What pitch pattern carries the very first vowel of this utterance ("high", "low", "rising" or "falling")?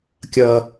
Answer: high